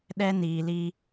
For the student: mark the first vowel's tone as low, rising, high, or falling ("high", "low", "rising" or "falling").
high